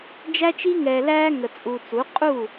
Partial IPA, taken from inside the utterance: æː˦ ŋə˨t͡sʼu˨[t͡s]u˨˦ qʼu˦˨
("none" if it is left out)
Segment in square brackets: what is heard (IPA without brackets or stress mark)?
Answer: t͡s